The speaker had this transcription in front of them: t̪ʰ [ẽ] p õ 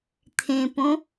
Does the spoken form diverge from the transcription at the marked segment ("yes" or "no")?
no